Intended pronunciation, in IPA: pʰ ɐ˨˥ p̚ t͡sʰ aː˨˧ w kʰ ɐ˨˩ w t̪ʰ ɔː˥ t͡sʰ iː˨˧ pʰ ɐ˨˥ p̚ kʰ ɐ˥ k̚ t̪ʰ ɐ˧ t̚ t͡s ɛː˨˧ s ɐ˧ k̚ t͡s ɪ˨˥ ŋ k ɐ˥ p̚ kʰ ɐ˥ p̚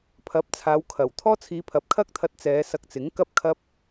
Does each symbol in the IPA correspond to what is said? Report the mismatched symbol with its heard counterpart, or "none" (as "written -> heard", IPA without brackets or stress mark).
none